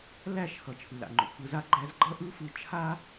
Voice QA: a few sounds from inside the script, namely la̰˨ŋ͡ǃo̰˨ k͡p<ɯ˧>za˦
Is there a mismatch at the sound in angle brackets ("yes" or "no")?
no